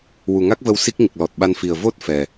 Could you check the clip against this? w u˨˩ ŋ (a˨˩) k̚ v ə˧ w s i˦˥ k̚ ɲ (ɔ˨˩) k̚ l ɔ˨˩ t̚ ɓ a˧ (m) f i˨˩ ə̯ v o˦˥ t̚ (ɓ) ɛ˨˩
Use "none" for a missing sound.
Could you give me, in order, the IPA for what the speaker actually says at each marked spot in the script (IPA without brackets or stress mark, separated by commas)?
a˦˥, ə˨˩, n, f